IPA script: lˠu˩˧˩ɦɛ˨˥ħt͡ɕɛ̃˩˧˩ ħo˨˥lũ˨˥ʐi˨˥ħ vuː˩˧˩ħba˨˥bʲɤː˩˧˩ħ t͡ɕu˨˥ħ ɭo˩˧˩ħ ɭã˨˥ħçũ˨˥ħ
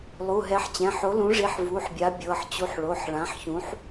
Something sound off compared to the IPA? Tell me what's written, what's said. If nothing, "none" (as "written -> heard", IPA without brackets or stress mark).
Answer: b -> bʲ